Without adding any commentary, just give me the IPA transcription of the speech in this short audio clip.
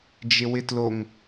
d͡ʒ ɪ w ɪ t l o ŋ

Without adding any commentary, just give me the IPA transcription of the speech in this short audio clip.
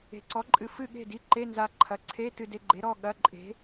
e̤˩˥ ǀ ɔ˩˥ ǃʼ ɨ˩˧˩ f ɨ˥˨ ɠ e̤˥˨ d i˧˥˧ ǃ e˧˥˧ n z a˧ ǃʰ ɐ˩˥ ǀʰ e˧˥˧ t ɨ˧ d e˧ ɡ͡ǃ e˩˥ ɾ ɔ˩˧˩ ɠ ɐ˧˥˧ ǃʼ e̤˩˥

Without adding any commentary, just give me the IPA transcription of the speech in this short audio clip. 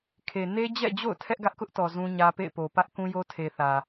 kʰ e˨ n e˦ d͡ʑ ɛ̰˦˨ d͡ʑ o̰˦˨ ʊ̯ tʰ ɛ˦ ʔ ɡ ä˦ ʔ k ʊ˦ ʔ t ɔ˨ z ũ˦ ɲ ä˦ p ḛ˦˨ ɪ̯ p o˨ p ä˦ ʔ k ũ˦ j o˦ tʰ e˨ θ ä˨

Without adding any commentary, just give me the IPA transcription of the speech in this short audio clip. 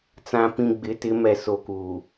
t͡s ã˨ p ĩ˨ ɡ͡b ɪ˨˦ t ɪ˨˦ m ɛ˨ s o˨ k uː˨

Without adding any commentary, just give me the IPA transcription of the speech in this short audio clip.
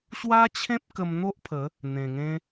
ɕ w a˦ t͡ɕʰ ẽ˦ p̚ k ə˧ m n̪ o˦ ʔ pʰ ə˨˦ | n̪ ẽ˨˩ ŋ ẽ˧

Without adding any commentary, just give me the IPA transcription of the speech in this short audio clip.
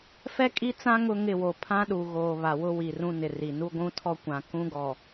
f ɛ˦ kʼ i˦ t͡s ã˦ ŋ ʊ˦ ŋ ɪ˦˨ w o˨ pʰ ã˦ ɗ u˨ ɣ oː˨ β a˨ w ʊ˦ w i˨ r ũ˦ n ɪ˨ r i˨ n u˦ ɡʷ ũ˦ tʰ ɔ˦ kʷ ã˨ k ũ˦ ɡ ɔ˨

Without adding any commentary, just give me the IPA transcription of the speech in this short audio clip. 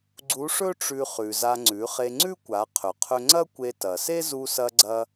ɡ͡ǀ u˧˥ ʂ ɵ˥ ʈ͡ʂ ʉ˧ χ ʉ˩ z a˧ ŋ͡ǀ ʉ˩˧ χ e˧ ŋ͡ǀ ʉ˥ kʷ a˩˧ qʰ ɵ˩ qʰ ɵ˧ ŋ͡ǀ ɐ˥ kʷ e˧ t ɐ˩ s e˥ z u˧ s ɐ˧ ɡ͡ǀ ɐ˧

